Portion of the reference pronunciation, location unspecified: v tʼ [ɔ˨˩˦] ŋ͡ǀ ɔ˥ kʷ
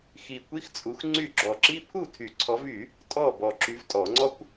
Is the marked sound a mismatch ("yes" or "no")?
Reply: no